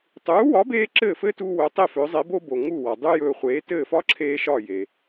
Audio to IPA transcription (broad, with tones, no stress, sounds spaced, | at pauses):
tˤ uː˩˥ w ɒ˩˥ b eː˧ ǁ ɘː˥˩ f ɘː˥ t uː˧ w ɵː˩˥ tˤ e˥˩ f ɵ˩˥ zˤ e˩˥ b o˥ b o˩ ŋ u˥˩ w ɒ˩ dˤ u˥ j ɵː˧ χʷ eː˩˥ t ɘː˥˩ f ɒ˥ ǁʰ eː˧ ʃ ɒ˥˩ j e˩